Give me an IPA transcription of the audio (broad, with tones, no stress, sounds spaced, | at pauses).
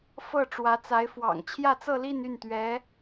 f ɤ˥˩ ʈ͡ʂ w ä˧˥ t͡s a˧˥ ɪ̯ f w ɑ̰˨˩ ŋ t͡ɕʰ j ä˥˧ t͡s ɤ˥˧ l i˥˧ n y˥˩ n t̪ ɥ ɛ˧˥